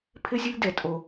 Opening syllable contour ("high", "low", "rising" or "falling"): high